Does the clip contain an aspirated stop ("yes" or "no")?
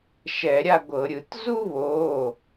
no